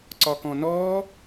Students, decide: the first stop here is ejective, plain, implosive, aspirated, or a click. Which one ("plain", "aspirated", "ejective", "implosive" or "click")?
click